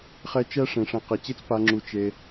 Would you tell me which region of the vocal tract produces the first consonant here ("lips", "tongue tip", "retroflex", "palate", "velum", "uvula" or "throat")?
uvula